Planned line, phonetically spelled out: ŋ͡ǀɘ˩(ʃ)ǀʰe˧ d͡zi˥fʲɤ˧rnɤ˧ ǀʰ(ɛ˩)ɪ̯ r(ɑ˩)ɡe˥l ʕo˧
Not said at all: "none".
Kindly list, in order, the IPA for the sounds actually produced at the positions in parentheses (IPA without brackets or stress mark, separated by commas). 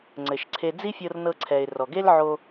ʃ, ɛ˩, ɔ˩